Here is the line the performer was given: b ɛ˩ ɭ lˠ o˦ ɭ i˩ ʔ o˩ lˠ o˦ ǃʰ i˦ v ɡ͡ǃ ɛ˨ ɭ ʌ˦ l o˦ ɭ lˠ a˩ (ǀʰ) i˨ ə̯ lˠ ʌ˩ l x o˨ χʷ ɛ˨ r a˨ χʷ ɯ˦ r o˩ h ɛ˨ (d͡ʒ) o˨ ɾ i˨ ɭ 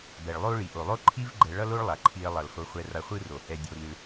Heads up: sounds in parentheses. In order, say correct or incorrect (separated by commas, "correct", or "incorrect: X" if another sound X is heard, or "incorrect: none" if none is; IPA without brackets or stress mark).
incorrect: ǃʰ, incorrect: dʲ